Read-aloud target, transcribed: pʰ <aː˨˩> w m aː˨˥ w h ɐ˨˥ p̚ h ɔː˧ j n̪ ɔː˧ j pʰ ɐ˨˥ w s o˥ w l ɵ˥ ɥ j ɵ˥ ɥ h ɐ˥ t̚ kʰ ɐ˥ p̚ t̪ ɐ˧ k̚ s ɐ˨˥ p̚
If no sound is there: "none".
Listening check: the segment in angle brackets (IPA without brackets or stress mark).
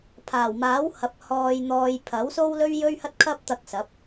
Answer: aː˨˩